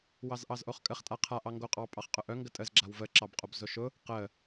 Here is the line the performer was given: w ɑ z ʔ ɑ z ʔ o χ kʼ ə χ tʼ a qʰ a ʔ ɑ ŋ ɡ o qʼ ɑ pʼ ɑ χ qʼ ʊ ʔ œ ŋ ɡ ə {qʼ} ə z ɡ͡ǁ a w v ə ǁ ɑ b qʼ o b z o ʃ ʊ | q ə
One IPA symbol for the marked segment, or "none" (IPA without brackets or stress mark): tʼ